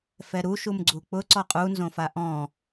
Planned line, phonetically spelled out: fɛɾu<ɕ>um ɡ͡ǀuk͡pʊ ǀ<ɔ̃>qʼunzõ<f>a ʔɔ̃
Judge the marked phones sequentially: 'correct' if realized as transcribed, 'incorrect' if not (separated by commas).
incorrect, incorrect, correct